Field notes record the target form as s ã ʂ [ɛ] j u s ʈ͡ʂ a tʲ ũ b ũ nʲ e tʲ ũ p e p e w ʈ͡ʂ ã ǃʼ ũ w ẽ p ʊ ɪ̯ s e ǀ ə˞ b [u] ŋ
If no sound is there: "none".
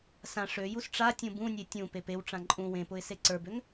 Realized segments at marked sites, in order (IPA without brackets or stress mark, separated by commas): ø, ø